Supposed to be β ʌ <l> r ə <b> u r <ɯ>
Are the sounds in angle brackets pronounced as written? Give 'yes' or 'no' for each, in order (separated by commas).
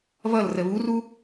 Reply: yes, no, no